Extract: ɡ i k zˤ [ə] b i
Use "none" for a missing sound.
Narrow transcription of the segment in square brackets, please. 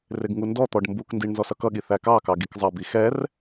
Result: ʌ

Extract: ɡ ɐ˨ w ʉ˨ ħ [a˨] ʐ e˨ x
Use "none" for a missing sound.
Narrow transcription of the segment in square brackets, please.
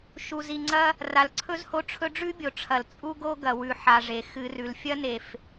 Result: a˨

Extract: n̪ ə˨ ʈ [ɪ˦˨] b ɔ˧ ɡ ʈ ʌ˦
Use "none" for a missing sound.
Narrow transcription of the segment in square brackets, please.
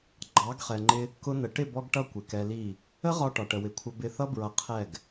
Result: ɪ˦˨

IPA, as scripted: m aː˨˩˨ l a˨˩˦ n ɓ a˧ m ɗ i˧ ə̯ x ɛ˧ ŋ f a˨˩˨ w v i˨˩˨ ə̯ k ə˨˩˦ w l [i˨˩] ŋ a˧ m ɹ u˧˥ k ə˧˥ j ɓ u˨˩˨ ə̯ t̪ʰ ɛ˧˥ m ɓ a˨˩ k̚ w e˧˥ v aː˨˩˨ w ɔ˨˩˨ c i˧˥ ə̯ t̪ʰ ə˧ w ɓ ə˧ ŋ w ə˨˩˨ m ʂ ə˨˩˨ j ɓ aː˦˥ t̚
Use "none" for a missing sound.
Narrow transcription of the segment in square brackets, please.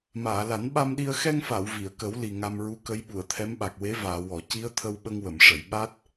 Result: i˨˩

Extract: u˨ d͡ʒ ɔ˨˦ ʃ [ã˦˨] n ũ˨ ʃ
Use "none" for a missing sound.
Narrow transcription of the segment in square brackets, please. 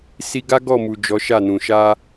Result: a˦˨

